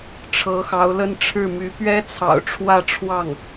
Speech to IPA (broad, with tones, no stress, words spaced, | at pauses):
ʈ͡ʂʰɤ˧˥xɑ˧˥ʊ̯lə˥˧nʈ͡ʂʰɻ̩˥˩ my˧˥pɥɛ˥t͡sʰɑ̰˨˩ʊ̯ ʈ͡ʂʰwä˥˧ʈ͡ʂʰwɑ˥˩ŋ